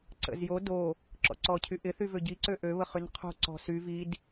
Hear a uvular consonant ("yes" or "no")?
yes